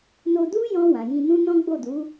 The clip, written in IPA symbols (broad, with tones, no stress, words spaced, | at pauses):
no˧du˦jɔ̃˧ wã˨jĩ˧nũ˦ nɔ̃˦ɡ͡bo˦˨du˨˦